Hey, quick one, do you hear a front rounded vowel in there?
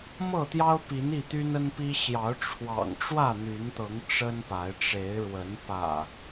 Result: yes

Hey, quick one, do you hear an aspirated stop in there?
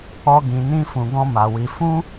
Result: no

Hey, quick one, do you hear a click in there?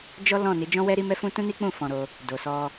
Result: no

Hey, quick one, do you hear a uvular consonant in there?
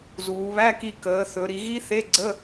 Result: no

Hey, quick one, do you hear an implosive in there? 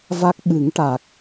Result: yes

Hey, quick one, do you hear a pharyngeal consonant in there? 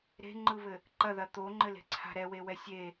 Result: no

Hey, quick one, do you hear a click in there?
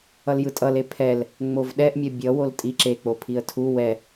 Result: yes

